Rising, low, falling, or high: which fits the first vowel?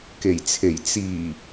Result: low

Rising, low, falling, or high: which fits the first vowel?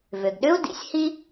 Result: low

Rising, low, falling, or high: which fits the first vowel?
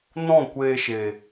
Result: falling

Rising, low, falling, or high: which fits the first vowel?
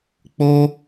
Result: high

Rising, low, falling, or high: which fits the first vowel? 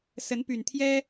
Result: rising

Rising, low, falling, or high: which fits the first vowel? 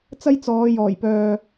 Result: high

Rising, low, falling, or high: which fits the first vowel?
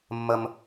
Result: high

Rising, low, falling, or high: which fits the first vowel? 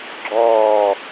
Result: falling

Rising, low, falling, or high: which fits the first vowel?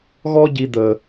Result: high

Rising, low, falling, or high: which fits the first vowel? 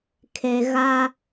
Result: low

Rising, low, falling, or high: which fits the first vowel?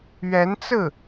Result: rising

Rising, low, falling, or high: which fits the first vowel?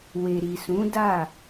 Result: low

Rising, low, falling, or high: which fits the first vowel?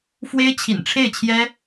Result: high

